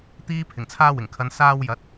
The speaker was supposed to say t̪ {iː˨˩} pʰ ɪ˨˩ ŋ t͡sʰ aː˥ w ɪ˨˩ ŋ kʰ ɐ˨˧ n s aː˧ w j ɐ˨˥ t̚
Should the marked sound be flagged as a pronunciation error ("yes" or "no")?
yes